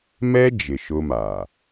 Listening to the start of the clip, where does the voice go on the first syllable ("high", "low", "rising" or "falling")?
high